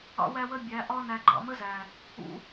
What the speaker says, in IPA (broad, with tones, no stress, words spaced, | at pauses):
ɑ̰˧wæ˧wə˧ bʲæ˨˦ʔɒ˦ næ˧ɡ͡ǃɑ̰˧mə˦zæ˨ | ṵ˧